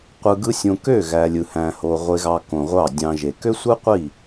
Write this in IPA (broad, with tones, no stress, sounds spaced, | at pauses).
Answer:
qʷ ɯ˧ ɡ ɯ˦ sʲ õ˧ k ø˦˨ ɣ æ˨ lʲ ɯ˨ h æ̃˨ h o˨ ʁʷ e˧ ɣ ɑ˧ k õ˨ ʁʷ ɑ˦˨ dʲ ɑ̃˧ ʒ e˨ k ø˦ sʷ ɯ˦ qʷ i˦˨